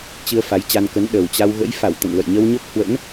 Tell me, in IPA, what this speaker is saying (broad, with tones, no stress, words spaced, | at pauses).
t͡ɕɨ˧ə̯ fa˨˦jt͡ɕa˧nkə˨˦n ɗə˨˩wt͡ɕa˧w ɣə̰˧˥jfa˧˩w t̪ə̰˧˨nlə̰˧˨j ɲə˧wɲo˦˥k̚hwə̰˧˥n